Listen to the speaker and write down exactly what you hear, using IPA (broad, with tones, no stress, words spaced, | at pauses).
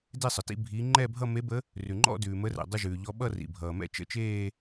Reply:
de˥˧sˤə˩tḭ˥˧ bʱi˧˥ ŋ͡ǃɛ˥˧bʱʌ˥˧me˧˥bə˧˥ | rʉ˩ŋ͡ǃɔ̰˥˧dʉː˩ mə˧˥rɛ̰˩ dˤə˥˧ʒʉː˩ʎɔ˧˥ ɓʌ˥˧ rḭ˩bʱʌː˩mɛ̰˥˧ t͡ʃə̰˥˧t͡ʃeː˥˧